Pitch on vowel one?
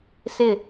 falling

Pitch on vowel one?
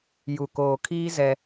low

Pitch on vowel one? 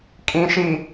low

